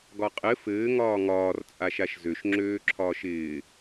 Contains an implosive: no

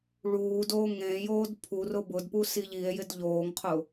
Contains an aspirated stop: yes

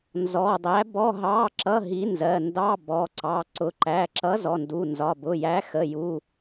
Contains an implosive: no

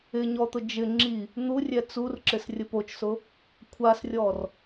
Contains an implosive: no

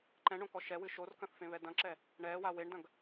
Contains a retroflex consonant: yes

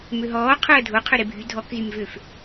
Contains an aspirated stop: yes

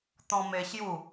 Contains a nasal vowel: yes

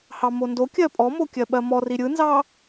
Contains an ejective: yes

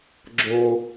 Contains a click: yes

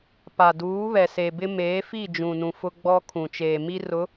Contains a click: no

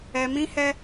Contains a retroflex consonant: no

